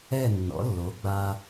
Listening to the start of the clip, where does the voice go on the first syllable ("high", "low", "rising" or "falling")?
falling